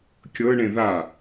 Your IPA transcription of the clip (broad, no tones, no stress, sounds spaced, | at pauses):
kʲ ɤ ɳ ẽ ð a